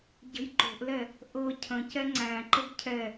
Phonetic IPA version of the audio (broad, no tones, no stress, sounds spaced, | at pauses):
ɟ ə̤ j ǃ o̤ ʔ l ɛ | ʔ ɤ cʰ ə̃ c ɛ ŋ͡ǀ æ̃ ǃ ə ɡ cʰ ɛ